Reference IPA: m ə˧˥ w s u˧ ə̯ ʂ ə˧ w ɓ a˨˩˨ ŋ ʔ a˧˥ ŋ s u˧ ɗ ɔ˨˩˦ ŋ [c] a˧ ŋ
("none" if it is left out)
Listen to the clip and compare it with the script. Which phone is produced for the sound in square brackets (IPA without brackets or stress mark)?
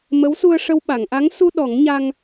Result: ɲ